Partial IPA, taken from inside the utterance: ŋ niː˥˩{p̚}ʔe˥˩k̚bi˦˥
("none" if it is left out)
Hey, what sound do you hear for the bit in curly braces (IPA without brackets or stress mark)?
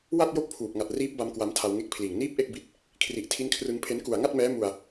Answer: p̚